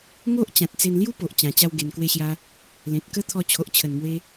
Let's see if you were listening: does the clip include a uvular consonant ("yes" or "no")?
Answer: no